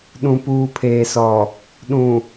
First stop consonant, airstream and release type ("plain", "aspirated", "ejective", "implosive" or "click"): implosive